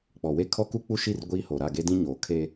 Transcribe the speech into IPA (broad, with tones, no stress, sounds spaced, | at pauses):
k͡p ɔ˨ w e˦ kʰ ɔ˦ k u˦ k͡p u˦ ʃ i˦˨ r ɡʷ iː˦ h o˨ ɾ a˦˨ ɡ e˦ d ĩ˦ ɲ oː˨ kʰ e˦